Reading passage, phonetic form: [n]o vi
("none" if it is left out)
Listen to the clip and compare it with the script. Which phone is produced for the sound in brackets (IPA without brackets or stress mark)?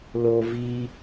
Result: l